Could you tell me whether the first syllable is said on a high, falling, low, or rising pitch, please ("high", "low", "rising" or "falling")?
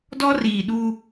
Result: high